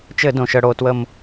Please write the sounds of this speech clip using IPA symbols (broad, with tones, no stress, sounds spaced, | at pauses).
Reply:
t͡ʃ ɘ˧˩˧ d õ˨˩ ʃ ə˧˩˧ ɽ o˩˧ t w ə˦˨ m